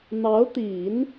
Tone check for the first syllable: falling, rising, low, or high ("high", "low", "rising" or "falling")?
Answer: rising